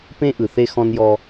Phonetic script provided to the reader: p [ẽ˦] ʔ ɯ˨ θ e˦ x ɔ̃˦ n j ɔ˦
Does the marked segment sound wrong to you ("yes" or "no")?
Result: no